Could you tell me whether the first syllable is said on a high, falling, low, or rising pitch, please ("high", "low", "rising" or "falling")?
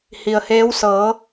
low